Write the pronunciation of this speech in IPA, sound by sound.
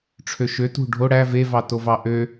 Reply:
ʈ͡ʂʰ ø ʃ ø t ṳ ɖʱ o ɽ æ v e v ɑ t o v ɑ ʔ ø

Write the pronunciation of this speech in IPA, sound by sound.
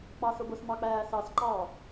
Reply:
k͡p ɑ s ʊ b ʊ s m ɑ k͡p æː s ɑ s ǃ ɑ

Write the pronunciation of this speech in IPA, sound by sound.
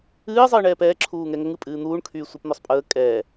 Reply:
ɨː zˤ ɨː ɳ ɛː p ɛː ǁʰ uː ŋ ɛ ŋ ə ŋ ɨ pʼ ɨː n̪ uː ɳ kʰ yː sʷ e p n̪ ɔ sˤ pʼ əː kʼ ɛː

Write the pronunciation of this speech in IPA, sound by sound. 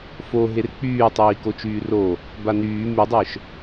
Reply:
f o ɦ e r k͡p yː tˤ iː k o t͡ʃ yː r o | b a n yː m y dˤ œ ʃ

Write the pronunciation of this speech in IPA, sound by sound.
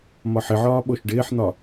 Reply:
m ɒ ħ ɪ ʕ ɒː ɓ o ʃ ɖ ɪː ħ n̪ ɒ

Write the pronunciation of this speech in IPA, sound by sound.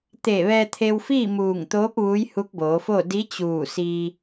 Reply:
t̪ eː˧˩ ʋ ɛː˧ t̪ʰ e˧ w f iː˥˨ m uː˧˩ ŋ t̪ oː˧˥ p̚ ʋ uː˧˥ j h u˧˥ k̚ b oː˩˧ f o˥˨ d i˧˥ t͡ɕ uː˧˩ s i˧

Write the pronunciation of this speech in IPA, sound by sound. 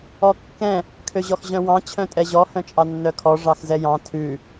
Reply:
ɔ kː ɛ̃ | kʰ ø ʑ ɔ x ʑ œ̃ w ɑ̃ t͡ɕʰ œ̃ tʼ ɛ ʑ ɔ h œ̃ t͡ʃʼ ɑ nː œ kʰ ɔ ʐ ɑ x z ɛ j ɑ̃ tʰ ʉ

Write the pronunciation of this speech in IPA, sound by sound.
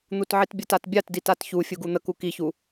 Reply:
n̪ u t ʕ i t bʲ ə t a t bʲ a t d i t a t ç u fʲ u ɡ u n̪ ə k u k i ç u

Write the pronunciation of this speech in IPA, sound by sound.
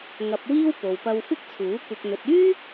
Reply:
ŋ ɐ˧ p̚ w iː˥ w p o˨ w p ɐ˧ w f ɪ˥ k̚ t͡sʰ uː˨˥ kʷ ɪ˧ k̚ n̪ ɵ˨ t̚ yː˥

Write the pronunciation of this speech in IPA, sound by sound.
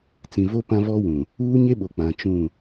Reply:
t͡s ĩ˨ v o˦ p ã˦ v ɔ˦ w ũ˨ | uː˦ ɲ e˦ ɓ o˨ k͡p ã˨ t͡ʃ ũ˦˨

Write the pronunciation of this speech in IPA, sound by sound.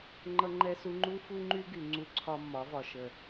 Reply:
ŋ͡ǃ ʌ˦ ŋ͡ǃ ɛ˦ s u˦ ŋ͡ǃ u˦ f u˦ ŋ͡ǃ y˦ ɡ y˨ ŋ͡ǀ u˦ ǀʰ ɒ˦ mː ɒ˨˦ v ɒ˨ ʃ ə˨

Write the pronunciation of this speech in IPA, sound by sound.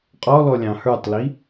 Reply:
qʼ ɔ l ɔ lʲ ɑ̃ h ə˞ tˤ l i

